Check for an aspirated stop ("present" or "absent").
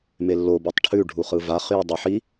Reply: present